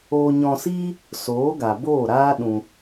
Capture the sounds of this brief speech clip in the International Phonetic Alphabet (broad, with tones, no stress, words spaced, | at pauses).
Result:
oː˧ɲɔ̃˧siː˦ | soː˨˦ɡa˨boː˦˨ɾaː˦ ɗũ˧